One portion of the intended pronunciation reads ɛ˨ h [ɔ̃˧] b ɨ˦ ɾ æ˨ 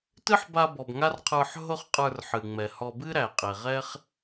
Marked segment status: incorrect: ɔ˧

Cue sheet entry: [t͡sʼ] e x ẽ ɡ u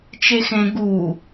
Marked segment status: incorrect: t͡ʃ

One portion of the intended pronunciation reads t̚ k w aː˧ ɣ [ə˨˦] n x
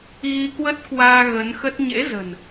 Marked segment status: correct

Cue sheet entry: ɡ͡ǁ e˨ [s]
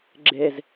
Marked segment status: incorrect: z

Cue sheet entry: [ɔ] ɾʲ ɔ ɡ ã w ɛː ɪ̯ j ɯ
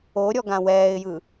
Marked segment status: incorrect: o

